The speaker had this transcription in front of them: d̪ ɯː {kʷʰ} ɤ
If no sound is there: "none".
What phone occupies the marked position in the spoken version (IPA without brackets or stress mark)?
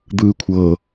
kʷʰ